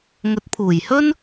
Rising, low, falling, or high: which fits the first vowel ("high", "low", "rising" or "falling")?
rising